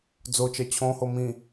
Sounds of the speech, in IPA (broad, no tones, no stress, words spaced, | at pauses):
d͡zot͡ʃɜ t͡ɕʰõho mĩ